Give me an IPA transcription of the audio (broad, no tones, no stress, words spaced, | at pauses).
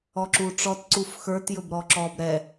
ɔǁuʈ͡ʂɔt ǀufxə˞t jɵbɾɔǁɔb ɾɛ